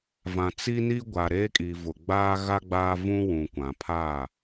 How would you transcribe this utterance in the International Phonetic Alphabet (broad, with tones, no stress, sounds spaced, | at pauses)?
v ã˨ t͡s i˦ n i˦ ɡʷ a˨ ɾ eː˦ kʼ i˨ v ʊ˨ ɡ͡b aː˦ ɣ a˦ ɡ͡b aː˦ v ũ˦ w ũ˨ kʷ ã˨ pʰ aː˦˨